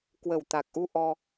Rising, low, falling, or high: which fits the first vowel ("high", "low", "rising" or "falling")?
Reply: low